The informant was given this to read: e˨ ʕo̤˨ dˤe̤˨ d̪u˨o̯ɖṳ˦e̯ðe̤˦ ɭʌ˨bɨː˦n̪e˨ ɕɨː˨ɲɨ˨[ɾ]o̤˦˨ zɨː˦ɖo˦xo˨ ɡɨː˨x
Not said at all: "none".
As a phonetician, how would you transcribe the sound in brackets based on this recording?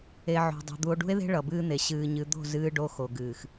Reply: d̪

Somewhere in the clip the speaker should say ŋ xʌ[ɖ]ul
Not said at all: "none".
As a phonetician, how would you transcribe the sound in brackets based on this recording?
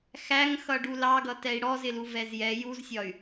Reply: ɖ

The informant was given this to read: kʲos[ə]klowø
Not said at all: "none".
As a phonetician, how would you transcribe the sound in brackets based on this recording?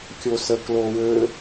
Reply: ə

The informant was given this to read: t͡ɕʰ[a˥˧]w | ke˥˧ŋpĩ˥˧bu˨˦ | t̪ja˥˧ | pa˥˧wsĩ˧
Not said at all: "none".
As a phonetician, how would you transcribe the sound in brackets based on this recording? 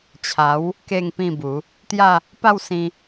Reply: a˨˦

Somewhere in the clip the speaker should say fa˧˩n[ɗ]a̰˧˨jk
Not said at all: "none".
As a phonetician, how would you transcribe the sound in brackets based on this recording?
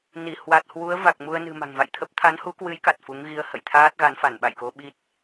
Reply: ɓ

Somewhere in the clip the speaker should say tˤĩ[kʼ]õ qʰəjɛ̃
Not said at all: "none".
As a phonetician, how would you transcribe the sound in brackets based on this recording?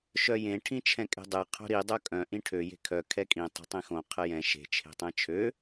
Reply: x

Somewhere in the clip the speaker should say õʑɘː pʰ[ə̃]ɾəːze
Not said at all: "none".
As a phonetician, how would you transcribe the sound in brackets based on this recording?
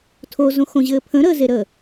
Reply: ə̃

